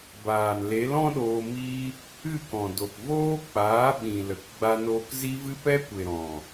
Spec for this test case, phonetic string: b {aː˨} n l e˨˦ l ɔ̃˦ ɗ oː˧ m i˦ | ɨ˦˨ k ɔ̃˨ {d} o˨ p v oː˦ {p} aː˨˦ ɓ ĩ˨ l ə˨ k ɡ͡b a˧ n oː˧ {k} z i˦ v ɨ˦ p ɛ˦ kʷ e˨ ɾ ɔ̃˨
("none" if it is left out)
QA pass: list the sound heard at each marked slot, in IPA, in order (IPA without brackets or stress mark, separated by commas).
aː˨, d, k͡p, k